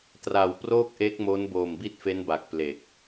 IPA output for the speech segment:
tra˨˩w proː˥˩k̚ʔe˦˥k̚mo˦˥n boː˨˩mbi˥˩t̚fe˦˥nba˨˩k̚ ple˨˩k̚

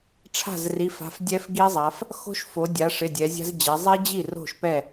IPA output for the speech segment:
ʈ͡ʂʰa̤˥˩zri˩˧˩fa̤˩˧˩f dʲɛ˦˥fɡi˦˥zˤa˩˧f | xo̤˦˥ʃfo˩˧dʲa˩˧ʂɪ˩˧˩ dʲɛ˩˧zʲa̤˦˥zd͡ʑɛ˩˧ zˤi˦˥d͡ʑi˥˩ ro̤˥˩ʃpɛ˥˩

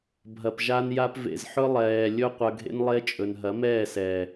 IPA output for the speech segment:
bʱɐ˨pʒa˧nja˧p vḛ˨zħɵ˧ lˠɛː˨ lʲɵ˦ qʷɐ˧ɡʱḛ˦nlˠe˦t͡ʃʼɵ˨n ɦɐ˨˦mɛː˦˨sɛː˨

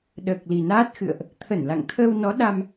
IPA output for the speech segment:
ɗəː˨˩k̚li˨˩naː˦˥t̚xɨ̰˧˨ə̯ʔ | t̪ʰə˧˩nla̰˧˨ŋt̪ʰəː˧w nɔ˨˦ ɗa˧m

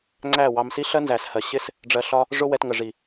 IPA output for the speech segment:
ŋ͡ǀæ˦˨wɑ˧m si˦ɬɜ˦ nzæ˨shɜ˨ ɕɪ˦s | ɖ͡ʐɜ˧ɬɒ˦ | ʐʊ˦ wɛ˧tŋə˨ʐi˨

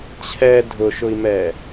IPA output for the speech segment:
t͡ɕʰɛ dʱʊʃʊi̯mɛː

